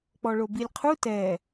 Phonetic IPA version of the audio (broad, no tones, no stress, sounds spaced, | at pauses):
k͡p ɔ ɭ o b i lʲ qʰ u t ɛ